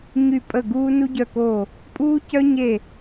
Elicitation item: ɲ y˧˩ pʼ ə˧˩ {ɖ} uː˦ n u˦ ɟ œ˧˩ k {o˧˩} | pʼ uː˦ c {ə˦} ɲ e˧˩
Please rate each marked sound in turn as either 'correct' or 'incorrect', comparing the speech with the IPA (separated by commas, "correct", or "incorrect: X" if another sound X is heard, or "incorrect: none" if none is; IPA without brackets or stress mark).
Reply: incorrect: ɡ, correct, incorrect: œ˦